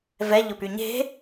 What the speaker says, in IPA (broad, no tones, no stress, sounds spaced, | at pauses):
v ɛ ʎ ʊ p y ɲ e̤